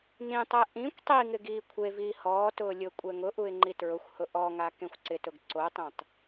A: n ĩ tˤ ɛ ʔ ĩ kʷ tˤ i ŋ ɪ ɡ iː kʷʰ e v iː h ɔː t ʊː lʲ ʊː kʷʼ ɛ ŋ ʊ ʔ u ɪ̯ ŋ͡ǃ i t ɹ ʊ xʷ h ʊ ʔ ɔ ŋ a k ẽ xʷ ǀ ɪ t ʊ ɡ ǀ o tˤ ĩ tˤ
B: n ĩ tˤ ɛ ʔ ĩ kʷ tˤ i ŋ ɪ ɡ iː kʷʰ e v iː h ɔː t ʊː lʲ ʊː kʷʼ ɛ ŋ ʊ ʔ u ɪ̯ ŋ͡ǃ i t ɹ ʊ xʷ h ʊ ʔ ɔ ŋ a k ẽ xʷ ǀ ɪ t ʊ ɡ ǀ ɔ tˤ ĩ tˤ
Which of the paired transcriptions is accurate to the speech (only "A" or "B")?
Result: A